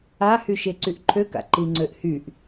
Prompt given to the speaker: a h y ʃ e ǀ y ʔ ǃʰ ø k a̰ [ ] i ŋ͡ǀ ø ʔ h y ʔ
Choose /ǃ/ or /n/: ǃ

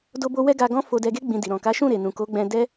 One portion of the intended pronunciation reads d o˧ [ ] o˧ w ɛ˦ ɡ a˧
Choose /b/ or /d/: b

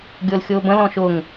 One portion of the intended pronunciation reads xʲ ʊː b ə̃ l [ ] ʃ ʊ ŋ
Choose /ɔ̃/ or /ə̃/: ɔ̃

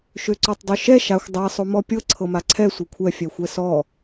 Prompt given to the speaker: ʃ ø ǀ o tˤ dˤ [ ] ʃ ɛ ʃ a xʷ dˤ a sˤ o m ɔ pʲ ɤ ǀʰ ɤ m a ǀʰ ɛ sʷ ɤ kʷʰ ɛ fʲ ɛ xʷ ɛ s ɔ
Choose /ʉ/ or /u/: u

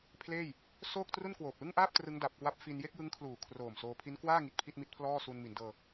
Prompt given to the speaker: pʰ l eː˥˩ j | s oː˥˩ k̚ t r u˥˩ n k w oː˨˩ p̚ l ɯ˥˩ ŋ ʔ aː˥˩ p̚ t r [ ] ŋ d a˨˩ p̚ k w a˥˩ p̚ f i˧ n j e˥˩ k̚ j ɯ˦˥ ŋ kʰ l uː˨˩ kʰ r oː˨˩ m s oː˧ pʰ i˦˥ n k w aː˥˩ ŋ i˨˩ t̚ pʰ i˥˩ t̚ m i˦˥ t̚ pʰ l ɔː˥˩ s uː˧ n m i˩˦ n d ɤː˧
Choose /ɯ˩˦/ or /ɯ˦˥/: ɯ˦˥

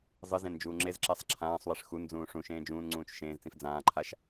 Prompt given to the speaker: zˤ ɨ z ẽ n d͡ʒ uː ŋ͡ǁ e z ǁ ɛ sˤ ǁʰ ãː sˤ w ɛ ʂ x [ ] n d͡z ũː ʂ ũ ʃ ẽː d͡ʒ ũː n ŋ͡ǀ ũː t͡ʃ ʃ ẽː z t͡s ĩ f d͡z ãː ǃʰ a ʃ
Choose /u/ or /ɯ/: u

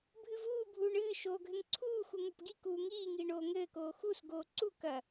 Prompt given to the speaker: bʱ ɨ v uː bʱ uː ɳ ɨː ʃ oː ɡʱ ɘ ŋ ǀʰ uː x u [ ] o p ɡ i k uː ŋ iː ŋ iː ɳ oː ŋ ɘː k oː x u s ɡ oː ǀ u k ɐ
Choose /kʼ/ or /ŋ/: ŋ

